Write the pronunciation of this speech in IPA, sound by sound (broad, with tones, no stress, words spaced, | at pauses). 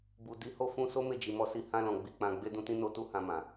bu˨ di˨˦ho˦˨ fũ˧so˦ me˦˨d͡ʒi˨mɔ˧ si˧ hã˧lɔ̃˨ ɡ͡bi˧k͡pã˧ ɡ͡be˧dũ˧tĩ˧ no˧tu˧ hã˧mã˨